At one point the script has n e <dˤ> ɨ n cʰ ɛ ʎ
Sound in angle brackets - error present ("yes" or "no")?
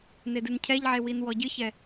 yes